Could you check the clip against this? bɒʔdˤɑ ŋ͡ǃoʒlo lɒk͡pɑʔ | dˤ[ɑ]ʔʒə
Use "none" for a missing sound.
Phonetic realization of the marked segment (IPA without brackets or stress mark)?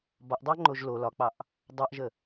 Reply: ɑ